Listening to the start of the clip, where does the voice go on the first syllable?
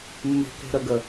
low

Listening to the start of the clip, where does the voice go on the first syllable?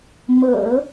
low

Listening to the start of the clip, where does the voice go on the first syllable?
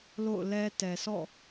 falling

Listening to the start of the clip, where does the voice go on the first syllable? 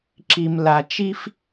low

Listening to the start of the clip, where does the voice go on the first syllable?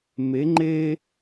rising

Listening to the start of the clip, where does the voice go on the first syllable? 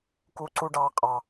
high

